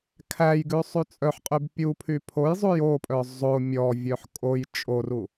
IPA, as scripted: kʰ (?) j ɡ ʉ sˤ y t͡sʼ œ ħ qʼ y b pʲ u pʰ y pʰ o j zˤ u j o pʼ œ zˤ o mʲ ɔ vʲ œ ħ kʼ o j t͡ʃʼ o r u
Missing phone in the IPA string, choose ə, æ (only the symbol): æ